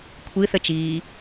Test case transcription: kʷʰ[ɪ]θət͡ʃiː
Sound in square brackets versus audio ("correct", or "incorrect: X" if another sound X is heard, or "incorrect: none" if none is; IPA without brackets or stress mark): incorrect: ɨ